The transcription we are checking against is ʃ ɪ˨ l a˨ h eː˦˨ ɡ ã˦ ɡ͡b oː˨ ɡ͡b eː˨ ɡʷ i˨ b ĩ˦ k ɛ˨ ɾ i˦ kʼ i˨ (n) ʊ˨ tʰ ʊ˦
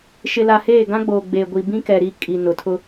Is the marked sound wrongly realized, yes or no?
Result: no